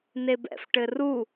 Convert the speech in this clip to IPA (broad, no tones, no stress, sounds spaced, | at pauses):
n e b ɛ̰ f ʈ ɘ r u